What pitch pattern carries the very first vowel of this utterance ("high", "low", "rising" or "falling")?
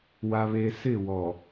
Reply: high